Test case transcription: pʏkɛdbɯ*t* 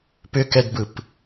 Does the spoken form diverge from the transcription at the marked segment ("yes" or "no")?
yes